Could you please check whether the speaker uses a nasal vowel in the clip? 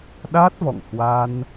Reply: no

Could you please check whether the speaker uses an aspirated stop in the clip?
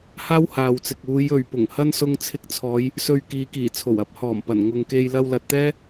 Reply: yes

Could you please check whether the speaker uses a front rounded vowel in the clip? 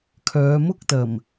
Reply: yes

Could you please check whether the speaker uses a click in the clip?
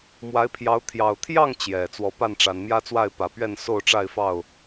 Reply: no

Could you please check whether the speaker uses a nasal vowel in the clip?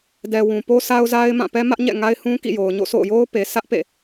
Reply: yes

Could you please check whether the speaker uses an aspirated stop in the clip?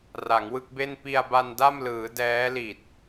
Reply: no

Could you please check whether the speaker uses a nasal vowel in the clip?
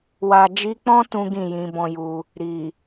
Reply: yes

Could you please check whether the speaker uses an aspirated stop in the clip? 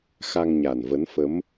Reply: no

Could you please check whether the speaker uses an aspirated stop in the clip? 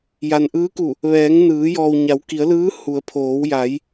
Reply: yes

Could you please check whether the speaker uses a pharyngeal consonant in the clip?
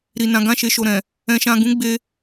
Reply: no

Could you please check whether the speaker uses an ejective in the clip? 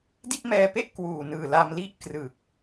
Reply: no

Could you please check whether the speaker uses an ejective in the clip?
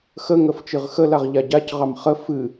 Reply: no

